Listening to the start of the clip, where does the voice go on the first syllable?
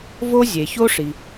high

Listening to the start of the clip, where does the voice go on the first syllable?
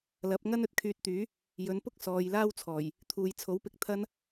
rising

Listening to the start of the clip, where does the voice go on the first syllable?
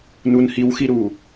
low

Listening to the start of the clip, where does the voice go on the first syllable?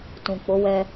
low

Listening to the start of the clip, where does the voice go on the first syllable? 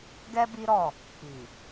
high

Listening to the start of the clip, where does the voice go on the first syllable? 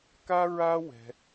high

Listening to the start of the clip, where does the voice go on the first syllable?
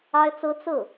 high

